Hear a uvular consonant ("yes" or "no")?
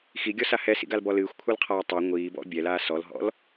yes